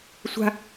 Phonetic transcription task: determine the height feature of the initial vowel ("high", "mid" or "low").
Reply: low